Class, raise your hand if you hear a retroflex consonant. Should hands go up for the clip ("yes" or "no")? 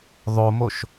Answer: no